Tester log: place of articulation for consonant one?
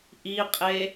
glottal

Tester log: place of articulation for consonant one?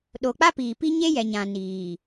alveolar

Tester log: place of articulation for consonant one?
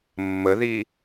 labial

